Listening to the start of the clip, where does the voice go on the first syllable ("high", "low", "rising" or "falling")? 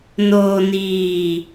low